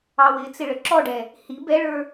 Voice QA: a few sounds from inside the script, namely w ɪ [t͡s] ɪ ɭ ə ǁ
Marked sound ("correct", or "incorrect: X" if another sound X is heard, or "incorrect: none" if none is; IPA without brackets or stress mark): correct